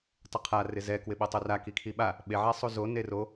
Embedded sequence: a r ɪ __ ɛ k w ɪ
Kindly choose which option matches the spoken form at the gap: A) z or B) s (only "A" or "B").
A